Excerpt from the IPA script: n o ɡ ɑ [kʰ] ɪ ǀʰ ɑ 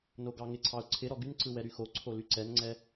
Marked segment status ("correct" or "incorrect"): incorrect